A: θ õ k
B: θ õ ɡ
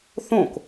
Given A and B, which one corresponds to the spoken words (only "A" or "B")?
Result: A